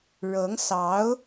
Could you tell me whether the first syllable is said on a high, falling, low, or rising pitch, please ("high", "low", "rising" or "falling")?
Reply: rising